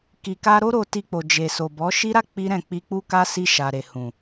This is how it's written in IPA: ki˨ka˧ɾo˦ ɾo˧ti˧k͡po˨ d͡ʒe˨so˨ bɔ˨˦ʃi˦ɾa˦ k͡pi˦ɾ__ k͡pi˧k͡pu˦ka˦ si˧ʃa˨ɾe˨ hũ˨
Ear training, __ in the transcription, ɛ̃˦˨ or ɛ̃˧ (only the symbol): ɛ̃˦˨